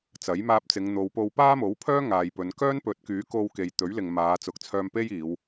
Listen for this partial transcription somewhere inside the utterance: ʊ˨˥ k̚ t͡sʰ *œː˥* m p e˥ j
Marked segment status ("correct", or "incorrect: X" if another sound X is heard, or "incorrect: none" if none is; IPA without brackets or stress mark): incorrect: œː˧